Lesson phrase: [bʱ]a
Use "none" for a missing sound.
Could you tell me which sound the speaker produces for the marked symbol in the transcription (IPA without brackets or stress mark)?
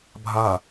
bʱ